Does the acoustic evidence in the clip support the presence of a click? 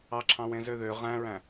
yes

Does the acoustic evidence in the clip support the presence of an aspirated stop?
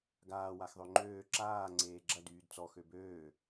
no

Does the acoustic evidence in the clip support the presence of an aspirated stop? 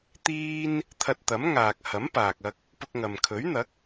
yes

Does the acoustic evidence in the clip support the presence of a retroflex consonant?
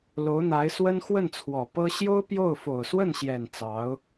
no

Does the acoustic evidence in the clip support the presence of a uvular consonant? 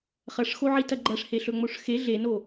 yes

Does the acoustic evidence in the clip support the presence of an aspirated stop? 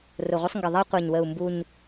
no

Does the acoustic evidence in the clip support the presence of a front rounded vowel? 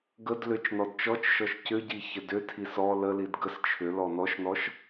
yes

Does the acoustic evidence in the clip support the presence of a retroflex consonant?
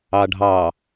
yes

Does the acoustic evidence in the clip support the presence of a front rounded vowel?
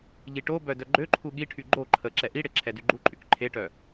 yes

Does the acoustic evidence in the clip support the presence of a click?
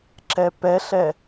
yes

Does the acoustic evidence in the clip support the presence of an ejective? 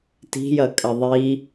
yes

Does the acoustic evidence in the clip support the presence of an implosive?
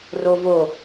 no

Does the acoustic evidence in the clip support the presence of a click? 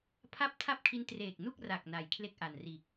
no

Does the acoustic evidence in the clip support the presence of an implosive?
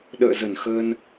yes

